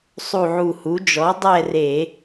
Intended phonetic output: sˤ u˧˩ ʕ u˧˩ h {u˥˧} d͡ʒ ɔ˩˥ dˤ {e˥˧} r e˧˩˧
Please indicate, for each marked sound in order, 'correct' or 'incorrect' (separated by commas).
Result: incorrect, incorrect